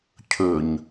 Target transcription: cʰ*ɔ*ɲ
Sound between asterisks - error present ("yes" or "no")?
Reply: yes